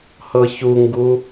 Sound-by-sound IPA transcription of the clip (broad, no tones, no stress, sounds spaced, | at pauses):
h ɤ ç u ŋ ɡ u